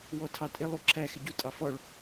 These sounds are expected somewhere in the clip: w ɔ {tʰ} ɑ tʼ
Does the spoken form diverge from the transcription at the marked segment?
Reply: no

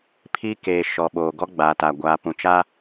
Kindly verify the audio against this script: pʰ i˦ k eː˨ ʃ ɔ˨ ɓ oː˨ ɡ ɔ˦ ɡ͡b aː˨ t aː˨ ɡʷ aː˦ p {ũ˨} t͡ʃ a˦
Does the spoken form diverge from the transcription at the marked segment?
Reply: no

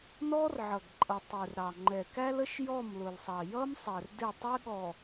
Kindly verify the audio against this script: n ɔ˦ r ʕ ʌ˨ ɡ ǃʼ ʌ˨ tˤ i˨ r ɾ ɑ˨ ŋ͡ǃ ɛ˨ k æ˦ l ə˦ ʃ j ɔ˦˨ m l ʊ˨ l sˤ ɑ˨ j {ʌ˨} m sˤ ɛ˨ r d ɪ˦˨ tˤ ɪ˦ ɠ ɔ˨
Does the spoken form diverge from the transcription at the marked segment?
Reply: yes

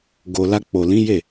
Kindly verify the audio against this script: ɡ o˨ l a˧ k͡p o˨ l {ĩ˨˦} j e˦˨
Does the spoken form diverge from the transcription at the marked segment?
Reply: no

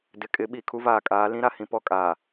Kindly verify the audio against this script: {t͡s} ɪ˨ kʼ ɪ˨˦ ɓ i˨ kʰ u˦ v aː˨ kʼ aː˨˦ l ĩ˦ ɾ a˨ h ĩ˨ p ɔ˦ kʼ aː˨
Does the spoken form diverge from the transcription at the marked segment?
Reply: yes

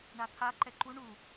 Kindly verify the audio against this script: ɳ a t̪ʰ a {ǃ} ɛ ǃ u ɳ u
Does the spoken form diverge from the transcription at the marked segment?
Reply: no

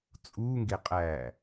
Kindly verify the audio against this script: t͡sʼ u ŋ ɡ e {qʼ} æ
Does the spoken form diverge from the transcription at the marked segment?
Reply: no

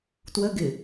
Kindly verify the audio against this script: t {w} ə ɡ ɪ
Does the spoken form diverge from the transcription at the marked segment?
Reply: no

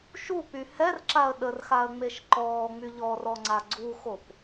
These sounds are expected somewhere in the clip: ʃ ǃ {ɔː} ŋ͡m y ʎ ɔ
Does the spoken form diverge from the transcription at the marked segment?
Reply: no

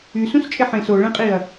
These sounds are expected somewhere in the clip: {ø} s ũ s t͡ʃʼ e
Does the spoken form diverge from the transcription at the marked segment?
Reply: yes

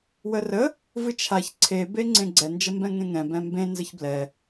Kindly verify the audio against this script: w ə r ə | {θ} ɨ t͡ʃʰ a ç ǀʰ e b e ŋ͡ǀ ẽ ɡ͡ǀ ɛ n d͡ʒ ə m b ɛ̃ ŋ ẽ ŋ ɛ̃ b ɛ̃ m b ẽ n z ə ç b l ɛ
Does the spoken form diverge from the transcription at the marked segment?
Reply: yes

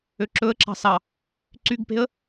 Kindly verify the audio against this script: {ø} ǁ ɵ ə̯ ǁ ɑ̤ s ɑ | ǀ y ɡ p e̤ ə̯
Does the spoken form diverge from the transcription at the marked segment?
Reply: no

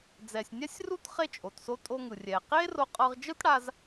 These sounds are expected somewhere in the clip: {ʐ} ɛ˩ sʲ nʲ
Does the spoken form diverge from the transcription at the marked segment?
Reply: yes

